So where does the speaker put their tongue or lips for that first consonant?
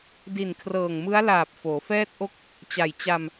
tongue tip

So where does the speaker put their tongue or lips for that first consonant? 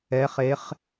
uvula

